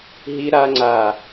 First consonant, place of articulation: glottal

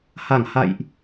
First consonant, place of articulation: glottal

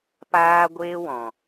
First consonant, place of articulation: labial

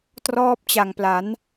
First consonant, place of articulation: alveolar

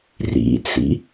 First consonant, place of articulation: alveolar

